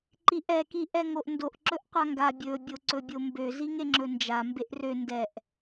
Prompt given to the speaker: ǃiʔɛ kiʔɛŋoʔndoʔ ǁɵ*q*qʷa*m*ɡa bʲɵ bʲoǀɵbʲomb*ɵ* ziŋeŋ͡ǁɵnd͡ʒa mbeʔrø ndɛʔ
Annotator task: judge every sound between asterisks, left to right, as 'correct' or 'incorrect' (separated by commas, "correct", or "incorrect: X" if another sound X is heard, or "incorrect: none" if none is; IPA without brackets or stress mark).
incorrect: ʔ, incorrect: ŋ, incorrect: ø